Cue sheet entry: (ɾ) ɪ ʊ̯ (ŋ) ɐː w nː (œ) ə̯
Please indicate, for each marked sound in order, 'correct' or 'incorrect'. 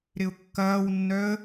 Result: correct, incorrect, correct

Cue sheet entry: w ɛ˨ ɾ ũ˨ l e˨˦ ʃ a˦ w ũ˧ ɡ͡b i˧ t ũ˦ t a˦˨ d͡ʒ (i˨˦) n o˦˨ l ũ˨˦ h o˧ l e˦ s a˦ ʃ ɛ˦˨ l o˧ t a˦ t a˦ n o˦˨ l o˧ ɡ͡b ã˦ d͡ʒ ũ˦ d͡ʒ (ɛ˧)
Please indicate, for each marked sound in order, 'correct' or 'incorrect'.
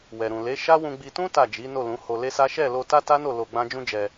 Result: correct, correct

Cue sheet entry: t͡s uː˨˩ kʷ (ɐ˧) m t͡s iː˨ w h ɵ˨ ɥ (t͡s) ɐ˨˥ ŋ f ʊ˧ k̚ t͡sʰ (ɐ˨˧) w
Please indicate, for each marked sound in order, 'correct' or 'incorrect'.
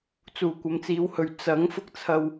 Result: incorrect, correct, incorrect

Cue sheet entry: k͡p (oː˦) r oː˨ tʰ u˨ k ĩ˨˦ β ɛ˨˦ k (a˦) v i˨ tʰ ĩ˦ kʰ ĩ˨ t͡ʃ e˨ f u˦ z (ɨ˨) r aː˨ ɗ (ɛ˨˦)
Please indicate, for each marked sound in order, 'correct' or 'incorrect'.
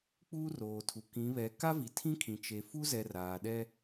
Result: incorrect, correct, incorrect, incorrect

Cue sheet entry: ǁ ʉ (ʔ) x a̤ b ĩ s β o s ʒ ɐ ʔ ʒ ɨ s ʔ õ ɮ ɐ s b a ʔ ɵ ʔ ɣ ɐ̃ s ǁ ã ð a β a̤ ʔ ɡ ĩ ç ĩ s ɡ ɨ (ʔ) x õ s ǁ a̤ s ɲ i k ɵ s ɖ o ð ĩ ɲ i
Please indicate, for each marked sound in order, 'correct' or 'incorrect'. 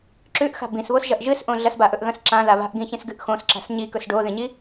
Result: correct, correct

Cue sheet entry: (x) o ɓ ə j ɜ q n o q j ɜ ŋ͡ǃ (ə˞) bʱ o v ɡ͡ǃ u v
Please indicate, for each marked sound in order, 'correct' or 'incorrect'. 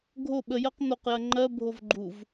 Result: incorrect, incorrect

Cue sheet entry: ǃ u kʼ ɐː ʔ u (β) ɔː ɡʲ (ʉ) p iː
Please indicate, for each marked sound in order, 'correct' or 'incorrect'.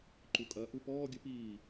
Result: incorrect, correct

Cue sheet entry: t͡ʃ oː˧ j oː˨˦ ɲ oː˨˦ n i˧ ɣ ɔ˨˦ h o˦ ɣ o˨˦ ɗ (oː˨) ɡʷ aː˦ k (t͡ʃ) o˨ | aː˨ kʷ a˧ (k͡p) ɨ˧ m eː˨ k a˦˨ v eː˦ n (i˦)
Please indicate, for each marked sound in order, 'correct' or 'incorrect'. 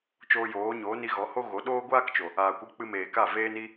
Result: incorrect, correct, correct, correct

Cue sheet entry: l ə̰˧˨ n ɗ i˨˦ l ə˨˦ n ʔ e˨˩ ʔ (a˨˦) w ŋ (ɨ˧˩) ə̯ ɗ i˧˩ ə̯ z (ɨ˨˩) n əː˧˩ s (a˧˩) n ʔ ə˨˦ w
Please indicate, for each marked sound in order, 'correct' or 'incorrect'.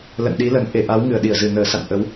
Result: correct, correct, correct, incorrect

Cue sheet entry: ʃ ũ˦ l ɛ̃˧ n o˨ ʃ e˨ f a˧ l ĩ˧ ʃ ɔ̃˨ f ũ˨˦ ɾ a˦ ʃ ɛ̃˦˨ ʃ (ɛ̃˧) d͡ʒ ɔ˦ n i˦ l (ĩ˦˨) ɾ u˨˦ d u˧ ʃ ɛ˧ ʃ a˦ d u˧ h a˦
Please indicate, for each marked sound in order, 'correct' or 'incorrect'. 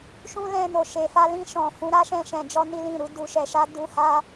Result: correct, correct

